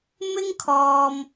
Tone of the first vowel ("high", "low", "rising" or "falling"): high